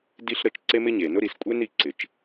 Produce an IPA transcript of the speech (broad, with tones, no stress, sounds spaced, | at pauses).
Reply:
d i˥ ɬ ɾ ə˩ t͡ʃ ǀ e˥ m ɪ˥ ɲ e˩ n ʊ˥ ɾ i˩ s kʷʼ e˥ n i˩ ǀ ɪ˩ t͡ʃ